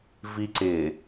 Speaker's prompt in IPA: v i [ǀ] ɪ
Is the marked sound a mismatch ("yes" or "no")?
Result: no